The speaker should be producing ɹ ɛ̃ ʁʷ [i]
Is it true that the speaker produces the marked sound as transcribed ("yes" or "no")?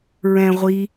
yes